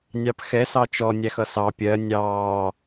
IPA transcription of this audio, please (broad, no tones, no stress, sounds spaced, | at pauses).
nʲ ɑ p x ɛ s ɑ t͡ʃ ɔ nʲ æ x ʌ s ɑ pʲ ɜ nʲ ɑː